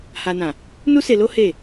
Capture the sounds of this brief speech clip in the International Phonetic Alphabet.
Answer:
h a˨ n ã˨ | n u˦ s e˧ l o˦ h e˦˨

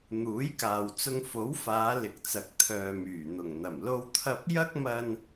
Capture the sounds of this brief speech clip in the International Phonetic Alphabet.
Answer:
n̪ uː˨˥ j k aː˨ w t͡s ʊ˧ ŋ f o˨˥ w f aː˨˧ l ɪ˨˥ k̚ t͡s ɐ˨ k̚ t̪ʰ œː˨ m yː˨˩ n̪ ʊ˨˩ ŋ n̪ ɐ˨˩ m l o˧ w t̪ʰ ɐ˧ p̚ j ɐ˥ k̚ m ɐ˧ n

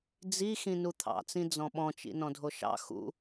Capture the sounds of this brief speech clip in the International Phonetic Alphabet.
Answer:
d͡z i x ĩ n u t̪ʰ ɑ̰ t͡s ĩ d͡z ɔ̃ ɓ ɔ̃ t͡ʃ ḭ n ɔ̃ dʱ o ʃ ɑ̰ x ṵ

